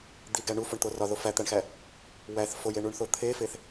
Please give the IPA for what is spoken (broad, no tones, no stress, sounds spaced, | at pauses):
d̪ i ɡ æ ɳ u f o ɳ t̪ o r ɒ ð o f æ t̪ æ ɳ x æ | w æ θ f o j e ɳ u ɳ θ o t̪ʰ e f e θ